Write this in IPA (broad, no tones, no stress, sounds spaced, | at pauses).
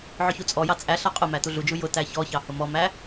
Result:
ʕ ʊ ç u t͡sʼ ɔ j ɑ t͡sʼ æ ɬ ɑ qʼ ʊ m æ t u ɮ u d͡ʒ u j ʊ t æ ç ɔ ç ɑ h ʊ m ɔ m æ